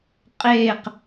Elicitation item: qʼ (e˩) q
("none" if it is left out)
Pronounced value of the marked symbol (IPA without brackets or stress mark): e˧˩